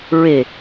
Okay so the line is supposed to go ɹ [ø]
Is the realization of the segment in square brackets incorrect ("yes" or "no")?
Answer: yes